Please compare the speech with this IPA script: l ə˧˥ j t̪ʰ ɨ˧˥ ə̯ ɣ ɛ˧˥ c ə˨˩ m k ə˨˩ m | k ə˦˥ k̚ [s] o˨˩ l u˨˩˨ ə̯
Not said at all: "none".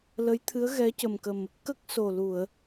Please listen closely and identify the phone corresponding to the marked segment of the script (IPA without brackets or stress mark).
s